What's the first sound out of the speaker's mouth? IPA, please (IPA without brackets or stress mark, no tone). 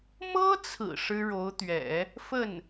m